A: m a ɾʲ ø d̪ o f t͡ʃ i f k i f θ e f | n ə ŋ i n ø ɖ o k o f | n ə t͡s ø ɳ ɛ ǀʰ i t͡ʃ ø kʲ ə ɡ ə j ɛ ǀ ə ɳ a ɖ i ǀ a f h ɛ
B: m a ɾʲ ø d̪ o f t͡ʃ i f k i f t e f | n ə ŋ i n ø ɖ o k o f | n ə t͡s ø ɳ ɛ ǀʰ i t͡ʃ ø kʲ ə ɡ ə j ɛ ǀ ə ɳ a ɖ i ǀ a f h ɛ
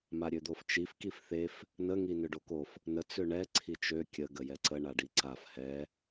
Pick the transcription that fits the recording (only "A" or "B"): A